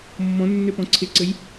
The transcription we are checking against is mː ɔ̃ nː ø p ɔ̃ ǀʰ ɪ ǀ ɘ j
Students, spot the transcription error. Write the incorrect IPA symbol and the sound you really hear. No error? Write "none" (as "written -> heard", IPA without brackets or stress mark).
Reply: none